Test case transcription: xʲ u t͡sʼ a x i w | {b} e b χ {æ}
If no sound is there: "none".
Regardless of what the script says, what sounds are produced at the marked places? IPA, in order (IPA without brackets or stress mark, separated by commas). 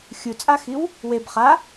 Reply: w, a